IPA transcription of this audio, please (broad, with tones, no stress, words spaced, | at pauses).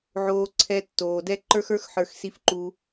ʕoː˧ǀʰɛ˧tːoː˨dɛ˦ ǃə˞˦xə˞˦xħə˞˧x si˧fǃu˧